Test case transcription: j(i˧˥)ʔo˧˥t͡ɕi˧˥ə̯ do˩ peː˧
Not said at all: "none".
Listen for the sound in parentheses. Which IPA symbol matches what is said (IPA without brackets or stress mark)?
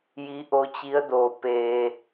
i˧˥